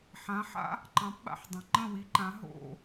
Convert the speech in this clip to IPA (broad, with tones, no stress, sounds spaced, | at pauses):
ħ ã˩˥ ħ a̰˥ | ǃ ɑ̃˩˥ p ɓ a̰˧ ħ dˤ ã˩ ŋ͡ǃ ə̃˥˩ w i˩˥ ǃ ã˩˥ ɦ o̰˥˩